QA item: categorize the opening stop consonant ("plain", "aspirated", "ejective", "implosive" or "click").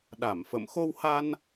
implosive